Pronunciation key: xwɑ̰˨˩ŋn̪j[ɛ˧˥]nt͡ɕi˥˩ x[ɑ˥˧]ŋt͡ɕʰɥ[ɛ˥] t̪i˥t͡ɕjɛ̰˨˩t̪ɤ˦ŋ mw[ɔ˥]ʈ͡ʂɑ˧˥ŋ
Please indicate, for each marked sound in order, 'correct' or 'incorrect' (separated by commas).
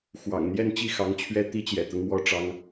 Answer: incorrect, incorrect, correct, correct